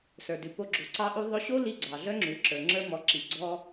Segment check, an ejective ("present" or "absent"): absent